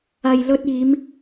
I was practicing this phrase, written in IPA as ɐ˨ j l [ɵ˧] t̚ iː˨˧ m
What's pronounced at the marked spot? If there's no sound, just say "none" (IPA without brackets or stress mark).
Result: ɵ˧